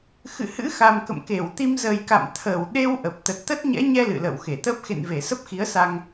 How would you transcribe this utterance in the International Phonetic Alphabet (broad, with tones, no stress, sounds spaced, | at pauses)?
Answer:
x ɨ̰˧˨ h ɨ̰˧˥ x a˨˩ m k ə̰˧˨ m k e˧˩ w t̪ i˧ m z ə˨˩ j k a̰˧˨ m t̪ʰ əː˧˩ w ɗ e˧ w ʔ ə˨˩ p̚ t̪ ə˨˩ t̚ t̪ ə˦˥ t̚ ɲ ɛ̰˧˥ ɲ ɛ˧ l ɨ̰˧˨ l ə̰ː˧˨ w x e˧˩ t̪ əː˦˥ p̚ x ḛ˧˨ n v e˧˩ s ə˦˥ p̚ x i˨˦ ə̯ s a˧ ŋ